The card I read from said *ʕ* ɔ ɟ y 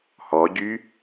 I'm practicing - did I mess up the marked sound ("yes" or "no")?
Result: yes